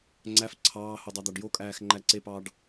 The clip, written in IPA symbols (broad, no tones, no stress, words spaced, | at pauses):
ŋ͡ǀæf ǀʰɑːho dˤɑd̪ɑɖjokʼæːx ŋ͡ǃæǀepɑːɖ